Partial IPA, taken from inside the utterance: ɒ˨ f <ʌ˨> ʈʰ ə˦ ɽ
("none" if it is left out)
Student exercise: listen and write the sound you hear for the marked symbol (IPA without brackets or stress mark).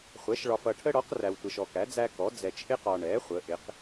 ʌ˨